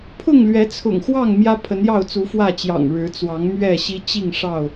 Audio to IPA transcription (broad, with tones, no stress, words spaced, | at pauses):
pʰʊ˥˨ŋlɥɛ˨˦t͡sʰʊ̰˨˩ŋxwɑ˥˨ŋ mjä˦pʰə˨˦njɑ˥˨ʊ̯ t͡su˨˦fwä˥˨t͡ɕjɑ̰˨˩ŋ ɻɻ̩˨˦t͡swɑ˨˦ŋmɥɛ˥˨ɕi˦ t͡ɕi˥˨ŋʂɑ˥˨ʊ̯